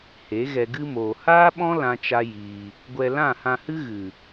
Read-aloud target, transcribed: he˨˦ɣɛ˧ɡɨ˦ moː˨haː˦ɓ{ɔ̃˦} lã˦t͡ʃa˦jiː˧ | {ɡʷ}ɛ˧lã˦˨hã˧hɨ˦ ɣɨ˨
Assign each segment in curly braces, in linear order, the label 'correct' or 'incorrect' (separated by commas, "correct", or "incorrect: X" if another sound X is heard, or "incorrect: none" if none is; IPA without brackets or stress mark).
correct, correct